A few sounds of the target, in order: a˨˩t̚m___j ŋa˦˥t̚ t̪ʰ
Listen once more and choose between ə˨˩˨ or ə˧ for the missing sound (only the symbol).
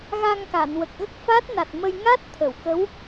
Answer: ə˧